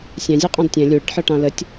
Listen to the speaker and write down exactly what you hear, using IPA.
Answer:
sʲæ̃zʲɜqʼɑ̃d tʲɛ̃ lʲuɽəʈħɒʈɑ̃ lətʲ

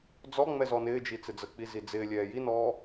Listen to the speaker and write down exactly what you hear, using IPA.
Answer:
d͡zɔŋ͡mɛ zɔnɪːd͡ʒi t͡sɪd͡zək͡pi zid͡zɪːlʲɛː jinɔː

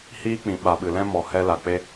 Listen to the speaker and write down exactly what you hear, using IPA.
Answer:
hiː˦k͡pĩ˨ ɓa˨ɓɨ˨lɛ̃˦mɔ˨ hɛ˦la˨ k͡pe˧

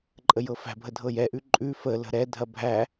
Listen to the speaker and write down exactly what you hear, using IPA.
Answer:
ǃʼəjɤfæ̤bʱə dʱɤjɛʔʉ ǃʼʉ fələ̤ ɾɛdʱɐ bʱæ

